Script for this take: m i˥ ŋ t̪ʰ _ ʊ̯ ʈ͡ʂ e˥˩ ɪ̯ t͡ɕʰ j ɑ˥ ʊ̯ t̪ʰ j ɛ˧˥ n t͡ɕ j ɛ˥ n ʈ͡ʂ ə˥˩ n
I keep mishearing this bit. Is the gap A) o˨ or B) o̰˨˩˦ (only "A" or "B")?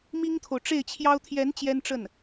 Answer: A